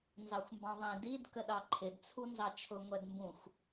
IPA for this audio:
n z ɑ xʷ m b ɑ̃ ðˤ ĩ d i d k ə ɗ ɑ ǃʰ ɪ d t͡sʰ u n z ɑ t͡ʃʰ ʊ ŋʷ ɛ d m b ũ xʷ

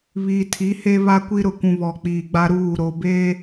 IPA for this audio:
β iː˨ tʰ i˨˦ h e˦ β a˦ kʷ i˦ ɾ ʊ˨ kʷ ũ˨ β ɔ˨ k͡p iː˨ ɡ͡b a˦ ɾ uː˦˨ ɾ o˨ b eː˦

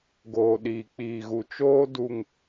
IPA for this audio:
ɡ oː˨ ɗ iː˨ k͡p iː˨ ɣ u˨ t͡ʃ oː˦ d u˨ ŋ

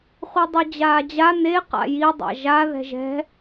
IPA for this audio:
χʷ i dˤ y d͡ʑ aː d͡ʑ a n e q a̰ j i dˤ a̰ ʒ a ð ɛ̤ ʒ ɛ̤

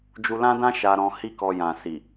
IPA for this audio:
d͡ʒ u˧ l ã˦ d ã˦ ʃ a˧ ɾ ɔ̃˧ h i˦ k ɔ˧ j ã˨ s i˨

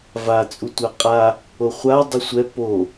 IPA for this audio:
v a t͡sʼ u tʷ a qʼ a | o χʷ a dˤ ʉ sʷ ɛ p o

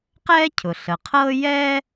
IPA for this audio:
q ɛː˥ cʰ ʊ˩ ɬ ə˩ qʰ ɤː˥ j ɛ˥

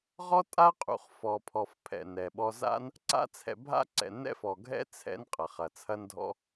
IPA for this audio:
ʁ ɔ˥ tʼ a˥ qʼ ṵ˧ χ f ɔ˧ pʰ ɔ˧ f pʰ ɛ̰˧ n ɛ˧ ɓ ɔ˥ z a̰˥ n | ǀ a̰˥ t͡sʰ ɛ̰˧ bʱ a̰˥ ǀ ɛ̰˧ n ɛ̰˥ f ɔ˧ ɡʱ ɛ̰˥ t͡sʰ ɛ̰˥ n qʼ ɐ˧ χ ɐ˧ t͡sʰ ɐ˥ n dʱ ɔ̰˥

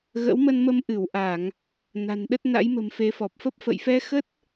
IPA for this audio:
ɣ ə̰˧˥ w m ə˧ n m ə˧ m ʔ ɨ˧˩ w ʔ a˧˩˨ ŋ | n a̤˨˩ n ɗ ə˦˥ t̚ n a̰˧˥ j m ə̤˨˩ m f e˨˦ f ɔ˨˩ p̚ f ə˦˥ p̚ f ə̰˧˨ j f ɛ˧ x ə˦˥ t̚

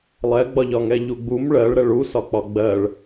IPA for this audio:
lˠ ɛ ɡ͡b ɒ ʎ ɒ ŋ ɛ ʎ u ɡ͡b u m ɭ ɜ ɭ ɾ ɛ ɭ u s ɒ k͡p ɒ ɡ͡b ɜ ɭ

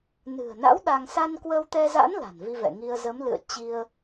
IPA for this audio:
n ɨ̤˨˩ ə̯ n a̰˧˥ w ɗ a˧ ŋ s a˧ n k w ə˧ w t̪ ɛ˧ z a̰˧˥ n l a̤˨˩ n v i˧ v ɛ̰˧˨ ŋ i˧ ə̯ z ə˨˦ m l ɨ̰˧˨ ə̯ t͡ɕ i˧ ə̯

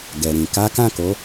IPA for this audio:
ɡ ɛ˨ ɾ ĩ˨ k a˨˦ k ã˦˨ k o˨˦

